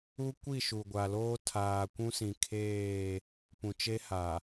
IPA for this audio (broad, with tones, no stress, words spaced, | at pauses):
u˦ kʷi˦˨ʃu˨ɡʷa˨loː˦ tʰaː˨kʷũ˦sĩ˨kʰeː˦˨ | pũ˨t͡ʃe˦ha˨